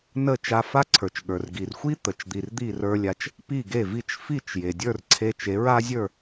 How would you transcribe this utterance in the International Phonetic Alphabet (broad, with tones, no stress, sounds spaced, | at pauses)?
n ə˥˩ t͡ʃ a˧ f a˥ ǀʰ ə˞˩ t͡ʃ ɠ ə˞˩ r ɡ i˩ r xʷ i˥ t̪ ə˩ t͡ʃ d̪ i˩ r d̪ i˥˩ r ə˞˧ lʲ a˧ t͡ʃ | p i˥˩ ɡ e˥˩ v i˥˩ t͡ʃ f i˥˩ t͡ʃ j e˩ dʲ ə˞˥˩ r ǀʰ e˧ t͡ʃ e˩˥ ɹ a˥ zʲ ə˞˥˩